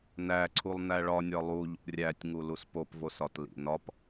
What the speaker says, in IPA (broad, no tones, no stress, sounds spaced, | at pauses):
n æ ǀʰ u lˠ n æ ɭ ɒ nʲ ɒ lˠ u ʎ ṵ rʲ æ tʲ ŋ u l u s p o p v o s ɒ t l ḭ n ɒ p